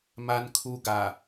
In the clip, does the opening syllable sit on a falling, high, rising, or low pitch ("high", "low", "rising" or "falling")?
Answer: low